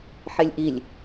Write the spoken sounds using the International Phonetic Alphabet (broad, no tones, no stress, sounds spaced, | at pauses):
ħ e lʲ ʔ i lʲ